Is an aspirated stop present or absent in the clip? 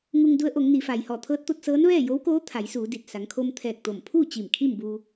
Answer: present